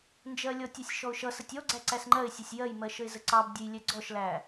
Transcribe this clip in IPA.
n d͡ʒ ɜ lʲ ɔ tʲ ʌ sʲ ʃ ɔ ʊ̯ ʃ ʌ s ə tʲ ɔ ɡ͡ǀ æ ǀ æ s ŋ͡ǃ ɜ ɪ̯ sʲ ɔ sʲ j ɜ j m ɜ ʃ ə ɪ̯ z ə ǀ ɑ b dʲ ə j lʲ ɛ ɡ͡ǀ ɔ ʃ l æ

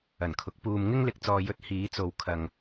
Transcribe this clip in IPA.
ɐ˨˩ n kʰ ʊ˨˥ k̚ p uː˧ m ŋ ɪ˥ ŋ l ɪ˧ k̚ t͡s ɔː˧ j ɵ˧ t̚ h iː˨˧ t͡s o˨ w kʰ ɐ˨ ŋ

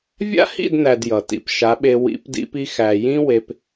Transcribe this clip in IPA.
vʲ a̰˦ h ḭ˦˨ d n æ˨ d j ʌ˨ t ḭ˨ p ʃ a˨˦ ɓ e˧ w ḭ˨˦ p d ḭ˧ p i˧ x æ˨ j ĩ˦ w e˧ p

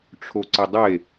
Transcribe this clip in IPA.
ʈ͡ʂʰ o ǀ ɪ dˤ e

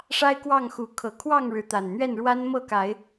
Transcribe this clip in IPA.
ʂ a˦ ɪ̯ k w ɑ˥˨ ŋ x u˨˦ kʰ ɤ˨˩ kʰ w ɑ˥˨ ŋ ɻ ɻ̩˨˦ t̪ a˨˩ n n̪ ɥ ɛ˥˨ n ɻ w a˦ n m ɤ˥˨ k a˨˦ ɪ̯

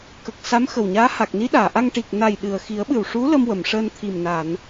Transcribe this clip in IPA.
k ə˨˩ k̚ s a˧˥ m x ə˨˩ w ɲ aː˧˥ h a˨˩ k̚ n i˧˥ ɗ aː˨˩˨ ʔ a˧ ŋ ʈ i˨˩ k̚ n a˨˩ j ɗ ɨ˨˩ ə̯ x i˨˩˦ ə̯ ɓ ɨ˨˩ w ʂ u˧˥ l ə˧ m w ə˨˩˨ m ʂ əː˧ n t̪ʰ i˨˩ m n a˨˩˨ n

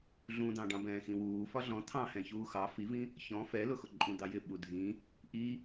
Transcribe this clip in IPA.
ɮ ũ d̪ ɑ̃ ɖ ɑ̃ b ɛ̃ː x ĩ w uː f ɒ ɮ ɔ̃ t̪ʰ ɑ̃ h ɛ̃ ç uː x ɑ f i v ĩ | ç ɔ̃ f ɛ l ʊ x ʊ ǃʼ ũ d̪ ɑ j ɪ ɓ u dʱ ĩ | ʔ i

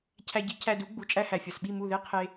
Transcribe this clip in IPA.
cʰ æ˧ ɟ i˩˥ cʰ æ˧ d u˩˥ ɡ͡b u˩˥ t͡ʃʼ æ˧ h æ˩ fʲ ɒ˩ s ɓ i˥˩ m u˥˩ ð e˥ qʰ e˧

